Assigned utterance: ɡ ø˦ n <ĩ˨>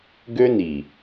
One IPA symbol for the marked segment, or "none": i˨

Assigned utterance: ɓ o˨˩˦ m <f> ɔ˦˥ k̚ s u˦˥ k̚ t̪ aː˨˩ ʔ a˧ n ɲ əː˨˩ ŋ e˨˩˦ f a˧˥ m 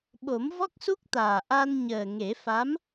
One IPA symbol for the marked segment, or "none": v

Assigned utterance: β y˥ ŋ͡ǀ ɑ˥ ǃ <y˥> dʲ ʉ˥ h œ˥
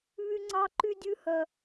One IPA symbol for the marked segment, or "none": y˥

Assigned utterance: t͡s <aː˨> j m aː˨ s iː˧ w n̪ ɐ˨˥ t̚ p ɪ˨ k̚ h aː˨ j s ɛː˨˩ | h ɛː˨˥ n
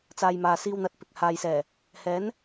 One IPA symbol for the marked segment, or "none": aː˨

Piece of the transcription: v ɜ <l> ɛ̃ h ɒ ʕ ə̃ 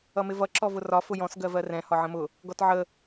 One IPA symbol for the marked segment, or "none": r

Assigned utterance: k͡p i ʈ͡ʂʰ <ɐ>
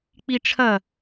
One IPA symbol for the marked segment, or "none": ɐ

